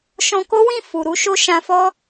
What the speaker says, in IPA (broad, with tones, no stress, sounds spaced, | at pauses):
ʃ ɔ̃˧ k o˦ w ĩ˦˨ f u˨ ɾ u˨˦ ʃ o˦ ʃ ã˧ f ɔ˦